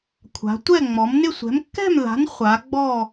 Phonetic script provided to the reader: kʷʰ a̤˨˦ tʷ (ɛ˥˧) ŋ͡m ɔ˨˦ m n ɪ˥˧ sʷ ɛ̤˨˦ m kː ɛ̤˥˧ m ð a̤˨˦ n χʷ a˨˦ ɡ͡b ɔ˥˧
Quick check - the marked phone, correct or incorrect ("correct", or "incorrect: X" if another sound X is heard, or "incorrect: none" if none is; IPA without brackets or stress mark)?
correct